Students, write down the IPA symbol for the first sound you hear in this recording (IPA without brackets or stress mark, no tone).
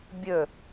bʲ